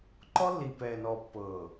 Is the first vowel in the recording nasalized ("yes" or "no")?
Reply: no